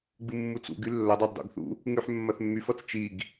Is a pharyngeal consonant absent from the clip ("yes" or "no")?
no